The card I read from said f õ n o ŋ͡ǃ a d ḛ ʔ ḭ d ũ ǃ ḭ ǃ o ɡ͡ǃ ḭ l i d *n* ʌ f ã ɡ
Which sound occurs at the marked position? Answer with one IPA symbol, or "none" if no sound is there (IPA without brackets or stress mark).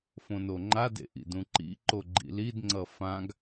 ŋ͡ǀ